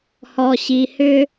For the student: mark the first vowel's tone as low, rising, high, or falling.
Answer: low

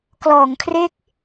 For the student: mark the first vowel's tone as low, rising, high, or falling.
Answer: low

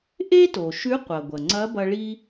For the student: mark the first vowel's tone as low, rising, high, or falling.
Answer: high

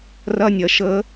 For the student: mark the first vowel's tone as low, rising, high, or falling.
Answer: high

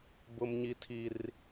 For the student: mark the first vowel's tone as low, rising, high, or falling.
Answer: high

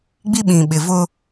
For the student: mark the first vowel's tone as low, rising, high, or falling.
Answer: high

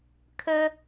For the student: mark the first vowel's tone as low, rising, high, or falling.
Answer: high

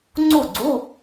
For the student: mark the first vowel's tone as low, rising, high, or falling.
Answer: falling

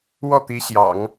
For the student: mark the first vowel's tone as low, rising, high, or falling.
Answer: falling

